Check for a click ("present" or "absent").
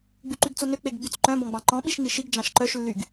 present